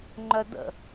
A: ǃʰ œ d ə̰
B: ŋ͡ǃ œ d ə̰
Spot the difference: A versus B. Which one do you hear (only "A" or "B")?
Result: B